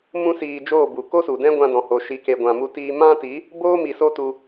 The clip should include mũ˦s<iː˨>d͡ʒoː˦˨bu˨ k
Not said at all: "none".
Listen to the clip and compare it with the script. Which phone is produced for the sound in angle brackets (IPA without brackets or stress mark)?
iː˧